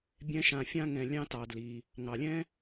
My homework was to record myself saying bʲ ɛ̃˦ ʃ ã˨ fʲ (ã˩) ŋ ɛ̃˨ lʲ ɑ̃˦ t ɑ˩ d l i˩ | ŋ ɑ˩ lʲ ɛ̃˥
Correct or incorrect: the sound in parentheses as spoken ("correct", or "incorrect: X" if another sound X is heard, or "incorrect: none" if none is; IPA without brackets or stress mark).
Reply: incorrect: ã˥